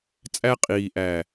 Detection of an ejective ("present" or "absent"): present